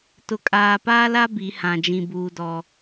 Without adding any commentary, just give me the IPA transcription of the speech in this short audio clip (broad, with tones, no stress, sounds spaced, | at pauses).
t ʊ˨ kʼ aː˨ p aː˦ l a˦ b i˨˦ h ã˨ d͡ʒ ĩ˨ b uː˨ d ɔ˨